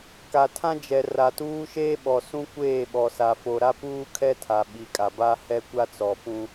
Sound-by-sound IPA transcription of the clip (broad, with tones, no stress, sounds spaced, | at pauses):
k a˨ tʰ ã˦ d͡ʒ ɛ˨ r a˨ t uː˦ ʃ eː˦ ɓ ɔ˨ s ũ˦ kʷ eː˦˨ ɓ ɔ˨ s a˨ f o˨ ɾ a˦ p uː˦ kʰ ɛ˦ tʰ a˨ ɓ i˨ kʼ a˨ b a˦ h ɛ˦ kʷ a˦ t͡s ɔ˨ p ũ˦